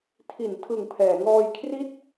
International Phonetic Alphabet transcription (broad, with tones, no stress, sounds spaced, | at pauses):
tʰ i˩˦ n tʰ ɯ˨˩ ŋ pʰ ɛː˩˦ ŋ ɔː˧ j kʰ r i˥˩ t̚